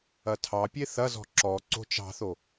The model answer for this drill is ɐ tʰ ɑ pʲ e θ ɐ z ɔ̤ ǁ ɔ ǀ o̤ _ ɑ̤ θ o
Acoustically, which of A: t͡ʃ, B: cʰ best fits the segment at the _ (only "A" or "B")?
A